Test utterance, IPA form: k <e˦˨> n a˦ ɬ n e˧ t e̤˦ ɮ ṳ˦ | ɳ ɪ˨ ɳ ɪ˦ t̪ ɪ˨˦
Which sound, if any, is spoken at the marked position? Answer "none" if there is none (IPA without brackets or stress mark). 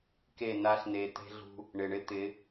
e˦˨